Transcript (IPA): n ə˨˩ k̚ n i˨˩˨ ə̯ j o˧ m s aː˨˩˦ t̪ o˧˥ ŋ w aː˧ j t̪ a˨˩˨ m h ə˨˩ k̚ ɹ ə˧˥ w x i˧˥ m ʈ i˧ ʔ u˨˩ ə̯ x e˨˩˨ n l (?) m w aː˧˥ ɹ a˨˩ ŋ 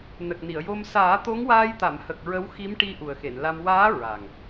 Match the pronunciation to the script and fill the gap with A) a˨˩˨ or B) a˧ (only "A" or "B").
B